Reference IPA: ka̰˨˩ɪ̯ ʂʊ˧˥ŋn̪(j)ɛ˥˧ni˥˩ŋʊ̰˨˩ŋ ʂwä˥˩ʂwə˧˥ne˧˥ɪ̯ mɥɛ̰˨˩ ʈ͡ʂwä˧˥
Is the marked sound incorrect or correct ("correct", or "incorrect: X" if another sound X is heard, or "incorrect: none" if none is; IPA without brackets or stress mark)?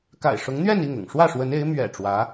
incorrect: ɥ